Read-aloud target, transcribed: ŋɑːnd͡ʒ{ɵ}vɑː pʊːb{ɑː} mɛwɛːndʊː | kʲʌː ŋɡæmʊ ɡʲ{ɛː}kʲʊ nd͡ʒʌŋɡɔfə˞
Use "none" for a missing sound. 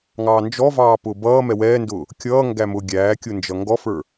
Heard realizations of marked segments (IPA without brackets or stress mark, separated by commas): ɔ, ʌː, æː